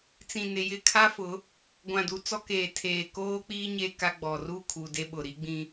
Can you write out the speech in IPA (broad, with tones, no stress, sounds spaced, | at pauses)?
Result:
t͡s ĩ˨ n ɪ˨ j ɪ˨ kʰ a˦ f ʊ˨˦ | ɡʷ ã˨ d u˨ t͡s ɔ˦ k eː˨ tʰ eː˨ k oː˦ k͡p iː˦ ɲ e˦ k a˦ ɡ͡b ɔ˨ r u˦˨ kʰ u˨ d e˦ ɓ ʊ˨ ɾ i˦ ɡ͡b ĩ˦